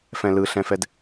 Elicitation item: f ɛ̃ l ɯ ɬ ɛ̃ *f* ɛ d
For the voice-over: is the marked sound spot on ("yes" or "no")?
yes